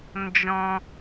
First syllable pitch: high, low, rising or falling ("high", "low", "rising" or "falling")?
high